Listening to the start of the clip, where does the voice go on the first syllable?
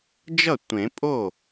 falling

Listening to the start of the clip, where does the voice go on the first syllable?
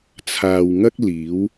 low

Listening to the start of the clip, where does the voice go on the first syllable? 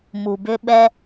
low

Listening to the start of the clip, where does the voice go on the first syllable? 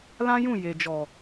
high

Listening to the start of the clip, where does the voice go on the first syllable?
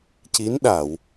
rising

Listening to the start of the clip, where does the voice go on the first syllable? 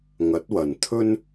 rising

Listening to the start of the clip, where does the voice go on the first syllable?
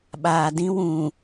low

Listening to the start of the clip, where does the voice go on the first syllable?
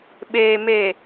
low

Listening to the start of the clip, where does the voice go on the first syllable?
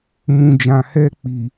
low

